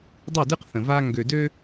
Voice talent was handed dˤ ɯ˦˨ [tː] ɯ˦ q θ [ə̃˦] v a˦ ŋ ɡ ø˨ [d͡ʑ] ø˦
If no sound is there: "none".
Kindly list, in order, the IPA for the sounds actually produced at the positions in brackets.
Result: d, ə̃˨, d

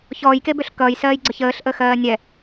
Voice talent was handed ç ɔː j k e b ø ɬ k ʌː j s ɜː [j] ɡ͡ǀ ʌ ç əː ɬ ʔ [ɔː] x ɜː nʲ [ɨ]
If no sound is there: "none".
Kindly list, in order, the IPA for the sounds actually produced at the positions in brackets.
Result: j, əː, ɛ

